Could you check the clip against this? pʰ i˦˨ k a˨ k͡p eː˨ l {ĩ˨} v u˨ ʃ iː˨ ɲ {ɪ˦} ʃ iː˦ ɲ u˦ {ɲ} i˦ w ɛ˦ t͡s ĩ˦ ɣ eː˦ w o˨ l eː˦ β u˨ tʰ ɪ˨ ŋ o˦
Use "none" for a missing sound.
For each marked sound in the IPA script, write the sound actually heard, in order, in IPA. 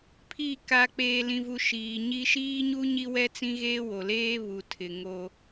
ĩ˨, i˦, ɲ

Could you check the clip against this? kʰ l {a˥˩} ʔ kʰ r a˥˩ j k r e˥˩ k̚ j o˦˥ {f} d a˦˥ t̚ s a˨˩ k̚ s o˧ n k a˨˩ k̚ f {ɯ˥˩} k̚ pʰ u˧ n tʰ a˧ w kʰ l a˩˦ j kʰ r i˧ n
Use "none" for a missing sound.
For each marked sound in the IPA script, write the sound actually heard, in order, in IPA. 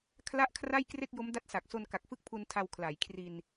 a˥˩, m, ɯ˥˩

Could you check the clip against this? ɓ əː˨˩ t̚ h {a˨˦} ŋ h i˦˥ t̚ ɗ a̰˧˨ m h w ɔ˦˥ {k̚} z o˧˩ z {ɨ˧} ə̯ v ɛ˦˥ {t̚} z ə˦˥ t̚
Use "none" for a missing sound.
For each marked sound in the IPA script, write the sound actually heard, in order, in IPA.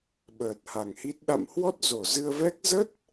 a˨˩, t̚, ɨ˧, k̚

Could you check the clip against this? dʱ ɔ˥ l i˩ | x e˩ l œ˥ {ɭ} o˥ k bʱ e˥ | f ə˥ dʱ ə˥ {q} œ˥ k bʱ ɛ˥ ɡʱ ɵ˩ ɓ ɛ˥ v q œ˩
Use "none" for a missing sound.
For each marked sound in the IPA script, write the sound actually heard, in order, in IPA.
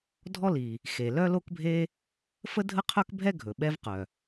l, qʰ

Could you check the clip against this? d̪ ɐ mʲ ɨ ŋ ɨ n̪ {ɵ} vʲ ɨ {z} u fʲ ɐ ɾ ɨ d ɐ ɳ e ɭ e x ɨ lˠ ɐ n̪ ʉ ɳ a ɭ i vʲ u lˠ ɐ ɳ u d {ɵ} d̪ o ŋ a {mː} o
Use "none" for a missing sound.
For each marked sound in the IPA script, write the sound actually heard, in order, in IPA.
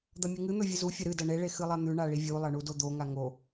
ɵ, z, o, ŋ

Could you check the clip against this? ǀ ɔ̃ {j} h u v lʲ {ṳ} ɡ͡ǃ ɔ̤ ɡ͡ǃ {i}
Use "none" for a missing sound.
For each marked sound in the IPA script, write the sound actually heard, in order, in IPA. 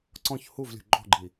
ç, ṳ, i

